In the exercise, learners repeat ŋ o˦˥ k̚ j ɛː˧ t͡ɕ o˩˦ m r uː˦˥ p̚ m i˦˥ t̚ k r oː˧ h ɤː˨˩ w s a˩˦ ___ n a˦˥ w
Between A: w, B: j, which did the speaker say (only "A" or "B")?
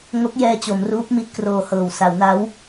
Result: A